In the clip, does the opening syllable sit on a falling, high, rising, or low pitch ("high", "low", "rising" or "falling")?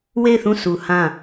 falling